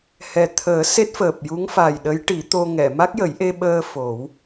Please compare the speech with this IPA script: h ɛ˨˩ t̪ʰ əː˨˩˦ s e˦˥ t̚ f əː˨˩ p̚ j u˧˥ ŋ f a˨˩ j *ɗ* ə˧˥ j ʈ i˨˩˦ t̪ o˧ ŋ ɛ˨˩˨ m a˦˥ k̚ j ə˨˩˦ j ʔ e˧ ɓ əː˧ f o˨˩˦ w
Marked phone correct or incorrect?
correct